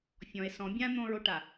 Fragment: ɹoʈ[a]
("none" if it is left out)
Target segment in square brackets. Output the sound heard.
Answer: a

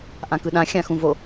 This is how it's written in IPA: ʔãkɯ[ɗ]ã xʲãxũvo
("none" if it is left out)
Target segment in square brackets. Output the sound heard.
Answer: ɗ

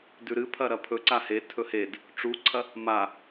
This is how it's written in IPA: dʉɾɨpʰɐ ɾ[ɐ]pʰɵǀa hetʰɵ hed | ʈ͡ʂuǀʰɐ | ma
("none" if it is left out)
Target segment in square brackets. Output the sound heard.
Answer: ɐ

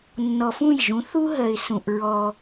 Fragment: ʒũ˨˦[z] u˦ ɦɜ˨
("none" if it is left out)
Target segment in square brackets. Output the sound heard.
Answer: θ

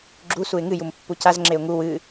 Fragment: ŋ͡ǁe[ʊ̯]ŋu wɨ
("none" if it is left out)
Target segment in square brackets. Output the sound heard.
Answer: ʊ̯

